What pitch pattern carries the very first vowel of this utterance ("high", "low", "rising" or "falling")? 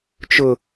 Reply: high